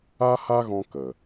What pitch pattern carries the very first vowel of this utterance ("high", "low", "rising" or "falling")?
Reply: high